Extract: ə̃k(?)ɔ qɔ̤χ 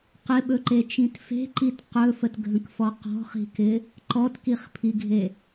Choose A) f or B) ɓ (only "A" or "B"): A